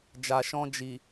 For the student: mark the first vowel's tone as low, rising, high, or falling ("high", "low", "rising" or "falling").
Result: low